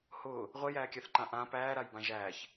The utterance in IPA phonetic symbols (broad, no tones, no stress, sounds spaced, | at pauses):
h ʊː | ʁʷ e j æː kʲ a θ ǃ ã ʔ ã p æː ɾ a j b ã ʒ æː ç